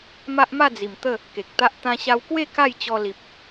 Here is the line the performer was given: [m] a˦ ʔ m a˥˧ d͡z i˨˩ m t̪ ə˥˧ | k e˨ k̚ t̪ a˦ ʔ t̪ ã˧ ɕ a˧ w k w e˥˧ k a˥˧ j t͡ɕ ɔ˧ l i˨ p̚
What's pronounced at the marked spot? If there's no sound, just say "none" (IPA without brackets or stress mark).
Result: m